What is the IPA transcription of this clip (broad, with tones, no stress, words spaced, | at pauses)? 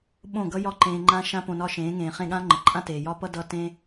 ɓõ˥˩ɡʌ˥jɒ˥˩ ǃẽː˧ŋ͡ǃã˥ ʃã˥põ˧nɒ˥˩ ʃẽː˩˥ŋẽː˩χẽ˥˩ɠã˥ ŋ͡ǃə˩ǃʼã˥teː˩ jɒ˥pʌ˥dʌ˧ tẽ˥